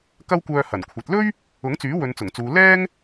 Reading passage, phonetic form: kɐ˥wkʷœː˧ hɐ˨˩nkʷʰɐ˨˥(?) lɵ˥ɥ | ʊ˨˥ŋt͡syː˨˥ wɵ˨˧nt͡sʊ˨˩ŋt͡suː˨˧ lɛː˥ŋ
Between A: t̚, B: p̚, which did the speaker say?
A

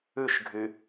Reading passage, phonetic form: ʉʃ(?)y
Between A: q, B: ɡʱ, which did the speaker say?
B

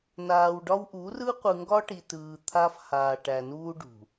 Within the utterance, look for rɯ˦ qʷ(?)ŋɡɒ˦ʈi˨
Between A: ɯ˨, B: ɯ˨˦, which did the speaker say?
A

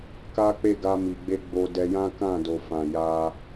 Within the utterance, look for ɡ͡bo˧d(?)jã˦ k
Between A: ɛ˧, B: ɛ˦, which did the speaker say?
A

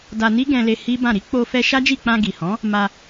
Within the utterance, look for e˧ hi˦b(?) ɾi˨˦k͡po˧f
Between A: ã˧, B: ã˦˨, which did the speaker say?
B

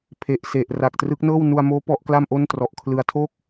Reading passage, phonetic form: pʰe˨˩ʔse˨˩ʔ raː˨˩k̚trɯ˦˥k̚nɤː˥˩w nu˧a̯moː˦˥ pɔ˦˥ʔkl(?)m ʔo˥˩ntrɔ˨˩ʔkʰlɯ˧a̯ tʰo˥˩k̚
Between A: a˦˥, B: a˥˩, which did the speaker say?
B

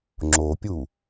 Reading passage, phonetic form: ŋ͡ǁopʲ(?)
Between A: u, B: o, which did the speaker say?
A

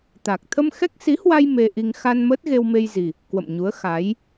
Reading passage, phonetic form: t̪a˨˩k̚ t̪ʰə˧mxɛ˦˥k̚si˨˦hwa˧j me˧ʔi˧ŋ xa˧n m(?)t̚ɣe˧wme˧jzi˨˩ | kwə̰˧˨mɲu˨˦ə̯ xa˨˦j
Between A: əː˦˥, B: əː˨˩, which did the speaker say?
A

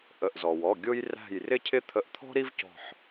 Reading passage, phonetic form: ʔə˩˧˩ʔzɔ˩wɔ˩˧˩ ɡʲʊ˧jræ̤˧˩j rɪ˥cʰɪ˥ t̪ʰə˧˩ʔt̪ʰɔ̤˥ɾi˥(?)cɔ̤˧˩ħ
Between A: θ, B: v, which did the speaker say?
B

